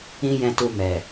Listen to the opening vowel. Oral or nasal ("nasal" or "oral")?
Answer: nasal